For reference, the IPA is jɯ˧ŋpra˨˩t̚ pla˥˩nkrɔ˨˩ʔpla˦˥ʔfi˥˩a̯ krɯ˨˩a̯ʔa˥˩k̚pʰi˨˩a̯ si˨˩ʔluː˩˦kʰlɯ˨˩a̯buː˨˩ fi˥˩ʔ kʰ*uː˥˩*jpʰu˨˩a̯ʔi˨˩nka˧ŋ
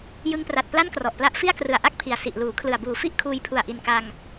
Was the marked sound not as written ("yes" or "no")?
yes